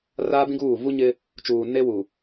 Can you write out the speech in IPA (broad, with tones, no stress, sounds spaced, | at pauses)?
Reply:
r aː˦ b ĩ˦ ɡ uː˦˨ v u˦ ɲ ɪ˦ | t͡ʃ uː˨ n e˦ w u˨